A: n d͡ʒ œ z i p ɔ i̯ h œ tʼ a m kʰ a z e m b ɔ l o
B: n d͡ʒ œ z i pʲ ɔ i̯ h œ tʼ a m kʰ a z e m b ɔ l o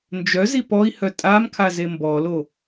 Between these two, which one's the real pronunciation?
A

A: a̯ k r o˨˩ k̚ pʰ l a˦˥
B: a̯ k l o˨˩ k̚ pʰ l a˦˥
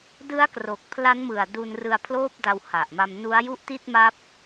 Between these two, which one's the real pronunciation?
A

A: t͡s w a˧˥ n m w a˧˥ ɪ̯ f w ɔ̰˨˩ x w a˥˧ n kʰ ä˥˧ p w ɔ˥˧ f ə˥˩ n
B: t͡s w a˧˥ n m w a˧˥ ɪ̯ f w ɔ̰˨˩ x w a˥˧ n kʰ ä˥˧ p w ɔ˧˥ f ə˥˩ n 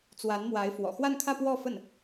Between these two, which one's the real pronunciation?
A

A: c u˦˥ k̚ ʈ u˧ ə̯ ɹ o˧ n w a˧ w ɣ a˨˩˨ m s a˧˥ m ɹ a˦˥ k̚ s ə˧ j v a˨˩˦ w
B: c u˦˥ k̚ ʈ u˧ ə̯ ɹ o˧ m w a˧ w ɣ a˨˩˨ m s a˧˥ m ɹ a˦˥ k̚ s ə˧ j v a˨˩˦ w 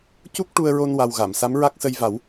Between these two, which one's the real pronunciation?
A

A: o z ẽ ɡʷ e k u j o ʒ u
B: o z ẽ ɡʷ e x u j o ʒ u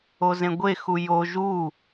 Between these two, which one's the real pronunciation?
B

